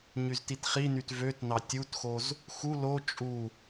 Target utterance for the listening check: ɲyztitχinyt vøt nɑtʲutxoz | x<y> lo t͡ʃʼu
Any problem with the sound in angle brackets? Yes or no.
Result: yes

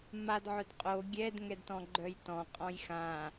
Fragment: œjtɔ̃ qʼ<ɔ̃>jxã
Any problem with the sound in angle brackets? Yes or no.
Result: no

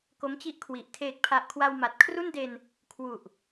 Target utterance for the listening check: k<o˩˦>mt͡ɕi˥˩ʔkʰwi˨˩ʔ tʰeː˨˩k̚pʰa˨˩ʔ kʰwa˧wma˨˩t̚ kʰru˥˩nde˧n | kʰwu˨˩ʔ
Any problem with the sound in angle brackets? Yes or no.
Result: yes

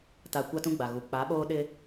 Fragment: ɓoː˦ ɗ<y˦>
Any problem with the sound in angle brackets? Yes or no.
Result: yes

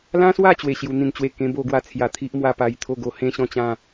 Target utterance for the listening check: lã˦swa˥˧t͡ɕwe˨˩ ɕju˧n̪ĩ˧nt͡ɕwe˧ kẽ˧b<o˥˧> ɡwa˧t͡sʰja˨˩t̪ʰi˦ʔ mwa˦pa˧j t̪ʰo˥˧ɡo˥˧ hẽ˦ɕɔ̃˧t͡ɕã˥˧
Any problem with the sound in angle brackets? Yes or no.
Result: no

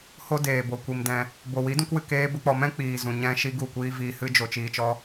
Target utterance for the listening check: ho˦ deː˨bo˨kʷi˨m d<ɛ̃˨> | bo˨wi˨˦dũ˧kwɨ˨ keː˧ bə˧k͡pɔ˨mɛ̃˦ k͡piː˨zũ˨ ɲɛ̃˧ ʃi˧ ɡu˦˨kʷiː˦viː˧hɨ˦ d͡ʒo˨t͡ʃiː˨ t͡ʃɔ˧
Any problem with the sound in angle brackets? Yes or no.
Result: no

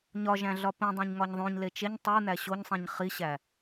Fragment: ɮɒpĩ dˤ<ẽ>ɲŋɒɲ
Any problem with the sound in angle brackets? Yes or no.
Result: no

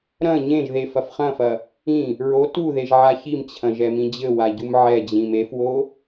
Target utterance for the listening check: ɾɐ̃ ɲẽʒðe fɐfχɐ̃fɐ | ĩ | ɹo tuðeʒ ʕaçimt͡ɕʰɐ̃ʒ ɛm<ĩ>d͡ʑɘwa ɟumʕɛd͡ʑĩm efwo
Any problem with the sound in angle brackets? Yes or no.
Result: no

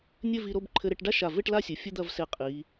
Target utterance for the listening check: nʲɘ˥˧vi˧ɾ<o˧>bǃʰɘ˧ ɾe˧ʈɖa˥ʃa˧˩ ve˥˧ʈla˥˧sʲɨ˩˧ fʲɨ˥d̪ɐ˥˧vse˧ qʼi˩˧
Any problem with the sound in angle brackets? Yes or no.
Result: yes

